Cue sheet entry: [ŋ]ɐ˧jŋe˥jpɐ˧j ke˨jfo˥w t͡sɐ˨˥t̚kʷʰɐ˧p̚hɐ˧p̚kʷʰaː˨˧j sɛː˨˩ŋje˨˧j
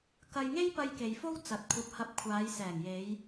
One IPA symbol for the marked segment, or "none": k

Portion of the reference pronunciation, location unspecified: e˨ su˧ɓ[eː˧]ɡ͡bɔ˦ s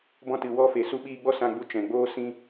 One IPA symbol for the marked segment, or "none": iː˧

